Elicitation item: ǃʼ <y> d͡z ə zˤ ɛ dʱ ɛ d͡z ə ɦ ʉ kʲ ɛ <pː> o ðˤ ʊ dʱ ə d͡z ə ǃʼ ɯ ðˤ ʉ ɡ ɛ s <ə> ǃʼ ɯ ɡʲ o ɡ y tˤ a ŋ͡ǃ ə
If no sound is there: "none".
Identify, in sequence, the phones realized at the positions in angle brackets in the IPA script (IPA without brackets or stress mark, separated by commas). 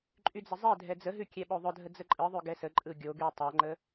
y, ɓ, ə